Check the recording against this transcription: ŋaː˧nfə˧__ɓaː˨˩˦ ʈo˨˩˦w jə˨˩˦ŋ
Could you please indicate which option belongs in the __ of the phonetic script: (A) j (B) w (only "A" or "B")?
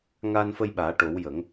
A